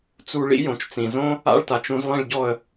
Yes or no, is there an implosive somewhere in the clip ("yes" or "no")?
no